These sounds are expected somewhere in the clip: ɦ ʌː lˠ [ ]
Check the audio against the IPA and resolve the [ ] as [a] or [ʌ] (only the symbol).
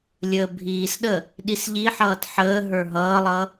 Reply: ʌ